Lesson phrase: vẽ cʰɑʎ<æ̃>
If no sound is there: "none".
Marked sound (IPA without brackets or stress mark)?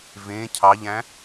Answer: æ̃